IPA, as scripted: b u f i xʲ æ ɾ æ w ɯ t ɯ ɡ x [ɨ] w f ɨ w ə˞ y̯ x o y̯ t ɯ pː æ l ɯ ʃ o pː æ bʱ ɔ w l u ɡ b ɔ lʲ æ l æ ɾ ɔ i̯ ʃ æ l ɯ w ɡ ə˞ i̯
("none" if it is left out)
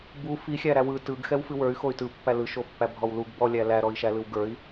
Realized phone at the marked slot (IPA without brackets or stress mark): ɛ